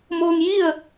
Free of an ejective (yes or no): yes